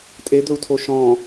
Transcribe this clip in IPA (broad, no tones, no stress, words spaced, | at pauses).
tʼed̪ɵu̯tʰo ʃɔ̃